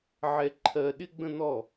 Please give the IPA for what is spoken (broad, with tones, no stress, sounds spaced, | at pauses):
ʕ ɛ˧ ǃʰ ɜ˧ ɗ ɪ˥ ɡ͡b ə̃˥ n̪ ɔ˥˩